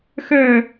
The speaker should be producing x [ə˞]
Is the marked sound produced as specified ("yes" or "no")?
yes